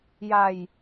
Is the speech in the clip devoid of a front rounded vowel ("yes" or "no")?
yes